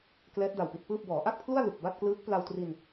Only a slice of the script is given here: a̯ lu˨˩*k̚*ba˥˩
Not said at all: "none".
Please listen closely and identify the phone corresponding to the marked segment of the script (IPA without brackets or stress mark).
k̚